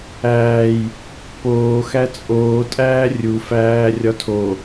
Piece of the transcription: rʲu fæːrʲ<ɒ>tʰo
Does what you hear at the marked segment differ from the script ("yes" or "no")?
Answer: no